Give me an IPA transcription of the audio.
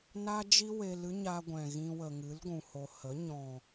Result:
n a˦ d͡ʒ i˦ w e˧ l ɨ˦ ɲ a˧ ɡʷ ɛ̃˨ ɣ ĩ˧ w ə˨ ŋ ɨ˨˦ l ɡʷ ũ˨ h o˨ h ə˨˦ ɲ ɔ̃˨

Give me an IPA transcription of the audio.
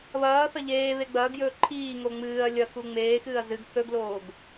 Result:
β ɐː θ ɐ ʎ eː β e ɡ͡b ɐː ɡ j ɵː ǃʰ iː ŋ o ŋ͡m ɨː ɐ̯ lʲ ɐ k u ŋ͡m eː x ɨː ɐ̯ z ɨ ɡ θ ɵ ɡ l oː ɡ

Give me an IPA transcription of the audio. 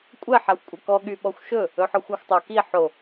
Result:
kʷʼ ɛ ħ a xʷ kʷʼ ɛ k ɔ ɠ y ɓ ɔ xʷ ʃ ɵ | ɵ ħ ɔ xʷ a xʷ tˤ o k i ħ o

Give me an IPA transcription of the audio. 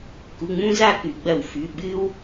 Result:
k u˩˧˩ ŋ͡m ũ˦ z a˦˨ k ʉ˩ ɡ͡b ɐ˧˩˧ w f ʉ˩˧˩ ɓ ɨ˦ w

